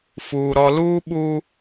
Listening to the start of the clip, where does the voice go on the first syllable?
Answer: low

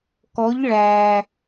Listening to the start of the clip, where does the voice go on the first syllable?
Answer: rising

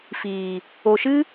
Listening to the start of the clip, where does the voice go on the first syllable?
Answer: low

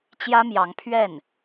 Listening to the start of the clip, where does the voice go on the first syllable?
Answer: high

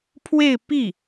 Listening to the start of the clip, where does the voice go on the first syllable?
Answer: falling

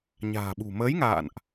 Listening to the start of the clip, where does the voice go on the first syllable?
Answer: low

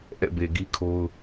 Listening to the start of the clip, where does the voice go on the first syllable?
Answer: falling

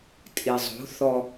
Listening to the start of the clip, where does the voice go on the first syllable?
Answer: low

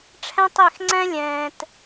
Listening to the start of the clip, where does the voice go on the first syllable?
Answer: high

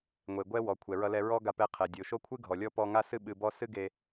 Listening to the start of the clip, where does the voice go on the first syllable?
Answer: low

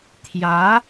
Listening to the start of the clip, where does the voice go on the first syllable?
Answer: rising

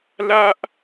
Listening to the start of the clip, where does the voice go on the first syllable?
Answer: high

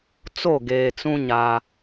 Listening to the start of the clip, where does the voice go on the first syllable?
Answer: falling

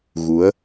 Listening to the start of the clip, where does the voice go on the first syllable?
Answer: rising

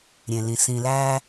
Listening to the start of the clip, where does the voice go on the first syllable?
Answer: low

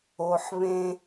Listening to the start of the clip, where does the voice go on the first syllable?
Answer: low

